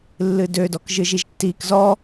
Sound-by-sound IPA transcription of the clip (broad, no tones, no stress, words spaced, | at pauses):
lːɨdødɔk ʒɨʒiʒtːik zɔ